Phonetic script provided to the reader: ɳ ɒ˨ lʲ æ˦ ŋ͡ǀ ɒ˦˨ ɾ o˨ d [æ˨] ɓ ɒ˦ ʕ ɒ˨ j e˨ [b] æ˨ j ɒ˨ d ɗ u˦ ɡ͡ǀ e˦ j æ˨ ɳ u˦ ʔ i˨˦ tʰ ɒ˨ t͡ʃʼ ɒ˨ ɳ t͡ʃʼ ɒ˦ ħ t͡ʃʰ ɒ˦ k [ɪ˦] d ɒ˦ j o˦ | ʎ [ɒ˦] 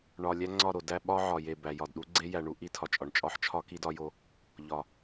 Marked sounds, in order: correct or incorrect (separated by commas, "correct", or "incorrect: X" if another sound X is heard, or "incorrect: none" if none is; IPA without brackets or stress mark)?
incorrect: æ˦, correct, incorrect: i˦, incorrect: ɒ˨